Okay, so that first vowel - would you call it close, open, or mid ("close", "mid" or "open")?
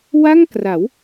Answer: open